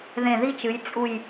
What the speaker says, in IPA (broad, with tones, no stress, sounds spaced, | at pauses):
ð ẽ˧˩ ð i˥ t͡ʃ ɨ˩˧ j t͡sʼ u˧˩ j